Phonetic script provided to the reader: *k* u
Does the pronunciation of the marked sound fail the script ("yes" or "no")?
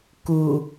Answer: no